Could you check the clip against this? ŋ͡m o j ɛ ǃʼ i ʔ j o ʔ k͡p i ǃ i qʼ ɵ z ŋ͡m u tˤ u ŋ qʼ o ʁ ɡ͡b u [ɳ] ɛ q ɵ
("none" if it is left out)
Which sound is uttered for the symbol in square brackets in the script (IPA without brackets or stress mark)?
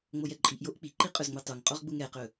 ŋ